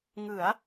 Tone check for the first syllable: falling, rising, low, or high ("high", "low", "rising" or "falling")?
rising